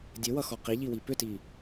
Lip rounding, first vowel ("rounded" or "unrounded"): unrounded